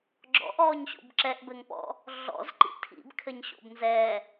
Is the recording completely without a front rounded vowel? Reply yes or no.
yes